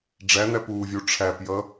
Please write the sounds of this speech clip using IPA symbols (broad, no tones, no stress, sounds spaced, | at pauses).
ɖ͡ʐ æ n̪ æ p uː vʲ u ʈ͡ʂʰ æ p j ʌ